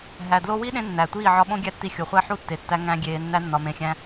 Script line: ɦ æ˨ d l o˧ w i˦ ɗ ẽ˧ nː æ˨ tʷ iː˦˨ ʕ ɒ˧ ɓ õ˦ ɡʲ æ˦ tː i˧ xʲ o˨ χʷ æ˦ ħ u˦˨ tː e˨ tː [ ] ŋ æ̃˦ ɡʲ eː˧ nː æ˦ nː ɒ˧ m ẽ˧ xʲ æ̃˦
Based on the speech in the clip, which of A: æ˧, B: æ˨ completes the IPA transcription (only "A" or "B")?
A